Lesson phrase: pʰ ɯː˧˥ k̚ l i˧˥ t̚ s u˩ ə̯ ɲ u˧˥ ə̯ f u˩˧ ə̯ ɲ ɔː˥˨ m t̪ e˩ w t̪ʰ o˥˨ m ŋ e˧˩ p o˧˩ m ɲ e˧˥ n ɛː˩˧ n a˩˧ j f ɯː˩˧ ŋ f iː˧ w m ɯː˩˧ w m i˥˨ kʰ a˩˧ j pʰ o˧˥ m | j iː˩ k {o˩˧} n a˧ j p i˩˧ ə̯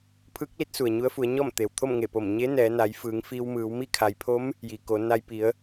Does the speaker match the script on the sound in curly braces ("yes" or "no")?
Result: yes